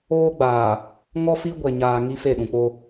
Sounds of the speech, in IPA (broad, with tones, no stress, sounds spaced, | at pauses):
oː˦ ɡ͡b aː˨ | ŋ ɔ˦ f i˦ ɡʷ ɛ˨ ɲ aː˨ ŋ i˦ f e˦˨ ɗ ũ˨ k͡p o˦